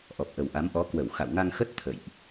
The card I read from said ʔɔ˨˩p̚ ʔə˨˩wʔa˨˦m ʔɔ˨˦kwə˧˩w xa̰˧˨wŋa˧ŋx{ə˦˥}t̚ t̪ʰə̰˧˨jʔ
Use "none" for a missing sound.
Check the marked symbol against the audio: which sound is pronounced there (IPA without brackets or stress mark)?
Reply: ə˦˥